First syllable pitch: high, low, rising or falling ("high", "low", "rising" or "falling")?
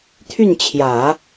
falling